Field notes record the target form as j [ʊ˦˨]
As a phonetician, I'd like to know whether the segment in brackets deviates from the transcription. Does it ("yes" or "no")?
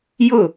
no